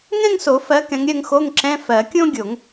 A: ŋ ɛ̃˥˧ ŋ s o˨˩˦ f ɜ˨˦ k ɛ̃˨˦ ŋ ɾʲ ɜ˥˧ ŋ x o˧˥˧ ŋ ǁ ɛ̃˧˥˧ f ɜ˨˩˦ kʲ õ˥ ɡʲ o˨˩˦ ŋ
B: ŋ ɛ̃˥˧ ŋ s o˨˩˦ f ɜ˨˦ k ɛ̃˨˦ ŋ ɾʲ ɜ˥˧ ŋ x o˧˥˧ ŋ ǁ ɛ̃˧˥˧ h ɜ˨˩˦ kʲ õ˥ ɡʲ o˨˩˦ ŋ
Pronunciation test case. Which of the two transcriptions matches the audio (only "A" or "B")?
A